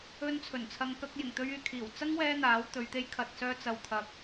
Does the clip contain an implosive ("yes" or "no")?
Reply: no